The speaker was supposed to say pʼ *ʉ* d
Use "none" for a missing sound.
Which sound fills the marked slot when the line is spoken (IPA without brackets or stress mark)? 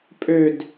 ø